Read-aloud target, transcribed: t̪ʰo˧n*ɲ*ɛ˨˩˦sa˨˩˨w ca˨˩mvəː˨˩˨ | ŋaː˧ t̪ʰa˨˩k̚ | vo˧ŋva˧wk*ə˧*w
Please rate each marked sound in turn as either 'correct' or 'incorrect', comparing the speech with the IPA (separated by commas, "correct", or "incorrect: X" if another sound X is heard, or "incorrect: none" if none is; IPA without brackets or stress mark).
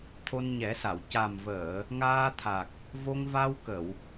correct, incorrect: ə˨˩˨